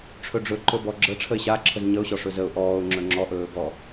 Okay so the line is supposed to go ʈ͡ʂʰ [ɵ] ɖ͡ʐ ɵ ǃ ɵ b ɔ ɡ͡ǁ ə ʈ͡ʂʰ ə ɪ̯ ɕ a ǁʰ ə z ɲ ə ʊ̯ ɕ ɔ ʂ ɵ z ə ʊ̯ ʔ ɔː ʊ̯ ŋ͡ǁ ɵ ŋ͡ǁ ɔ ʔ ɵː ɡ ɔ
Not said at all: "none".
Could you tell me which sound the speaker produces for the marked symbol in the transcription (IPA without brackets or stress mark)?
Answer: ɵ